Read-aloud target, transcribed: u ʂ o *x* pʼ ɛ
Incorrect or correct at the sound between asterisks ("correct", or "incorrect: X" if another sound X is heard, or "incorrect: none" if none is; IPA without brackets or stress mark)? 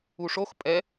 correct